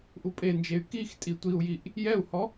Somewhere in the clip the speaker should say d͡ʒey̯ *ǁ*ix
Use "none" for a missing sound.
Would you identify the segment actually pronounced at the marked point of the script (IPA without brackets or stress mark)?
k